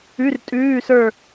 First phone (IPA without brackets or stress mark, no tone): ʉ